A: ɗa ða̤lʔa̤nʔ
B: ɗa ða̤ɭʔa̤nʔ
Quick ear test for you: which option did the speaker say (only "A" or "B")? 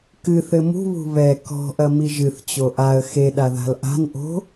A